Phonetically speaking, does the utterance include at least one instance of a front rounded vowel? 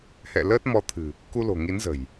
no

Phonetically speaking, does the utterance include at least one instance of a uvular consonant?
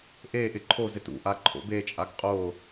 yes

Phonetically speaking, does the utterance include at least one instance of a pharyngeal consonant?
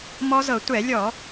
no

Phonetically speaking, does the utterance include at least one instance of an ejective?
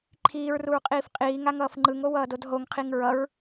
yes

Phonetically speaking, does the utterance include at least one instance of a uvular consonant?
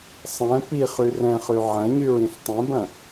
yes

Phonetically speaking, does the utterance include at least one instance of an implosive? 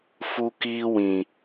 no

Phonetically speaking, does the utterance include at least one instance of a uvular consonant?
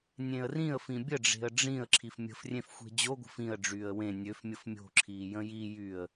no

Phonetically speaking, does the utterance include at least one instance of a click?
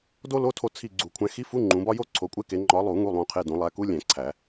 yes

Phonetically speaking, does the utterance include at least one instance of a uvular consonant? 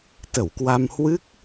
no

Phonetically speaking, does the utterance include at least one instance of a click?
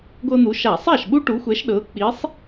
no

